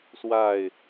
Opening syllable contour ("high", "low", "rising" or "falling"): falling